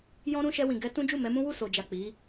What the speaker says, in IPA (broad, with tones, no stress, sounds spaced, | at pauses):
j ɔ̃˦ ɾ ũ˦ ʃ ɛ˧ w ĩ˨ ɡ ɛ˧ t ũ˦ d͡ʒ u˦˨ m ɛ˨˦ m ũ˦ w u˦˨ s o˨ d͡ʒ a˨ k͡p i˨˦